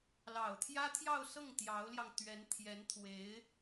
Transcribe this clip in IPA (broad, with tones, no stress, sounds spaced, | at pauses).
l ɑ˨˩ ʊ̯ t̪ʰ j ä˥ t̪ʰ j ɑ˥˧ ʊ̯ s ɤ˥˩ ŋ t̪ j ɑ˧˥ ʊ̯ l j ɑ˧ ŋ t̪ ɥ ɛ˧˥ n t̪ʰ j ɛ˧˥ n t̪ʰ w e˧˥ ɪ̯